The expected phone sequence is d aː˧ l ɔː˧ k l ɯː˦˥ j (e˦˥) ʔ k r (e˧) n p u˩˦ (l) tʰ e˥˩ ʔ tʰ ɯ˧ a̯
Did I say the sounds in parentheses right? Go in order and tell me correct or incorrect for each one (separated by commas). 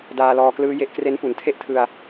correct, incorrect, incorrect